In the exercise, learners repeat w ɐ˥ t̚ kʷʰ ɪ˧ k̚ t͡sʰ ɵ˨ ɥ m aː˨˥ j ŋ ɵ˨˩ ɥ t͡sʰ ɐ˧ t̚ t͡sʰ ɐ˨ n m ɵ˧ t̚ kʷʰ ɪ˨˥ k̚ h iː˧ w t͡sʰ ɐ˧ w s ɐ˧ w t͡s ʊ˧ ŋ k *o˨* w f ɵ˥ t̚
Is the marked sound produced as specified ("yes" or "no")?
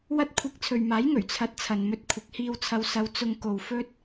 yes